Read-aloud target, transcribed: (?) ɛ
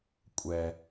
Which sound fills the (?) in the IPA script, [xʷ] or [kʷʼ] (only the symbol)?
kʷʼ